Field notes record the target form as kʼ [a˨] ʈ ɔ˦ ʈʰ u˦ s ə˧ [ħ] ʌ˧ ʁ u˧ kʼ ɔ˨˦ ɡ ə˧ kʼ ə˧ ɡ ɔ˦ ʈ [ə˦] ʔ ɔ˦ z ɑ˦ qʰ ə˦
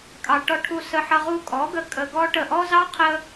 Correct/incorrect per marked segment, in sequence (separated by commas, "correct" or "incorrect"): incorrect, correct, incorrect